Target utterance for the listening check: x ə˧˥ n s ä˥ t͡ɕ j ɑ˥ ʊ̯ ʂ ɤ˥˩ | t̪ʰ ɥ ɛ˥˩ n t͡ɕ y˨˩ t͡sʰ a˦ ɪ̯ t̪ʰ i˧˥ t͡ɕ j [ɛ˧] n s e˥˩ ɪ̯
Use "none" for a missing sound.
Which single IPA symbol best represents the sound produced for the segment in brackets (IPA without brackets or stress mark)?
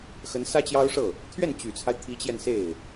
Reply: ɛ˧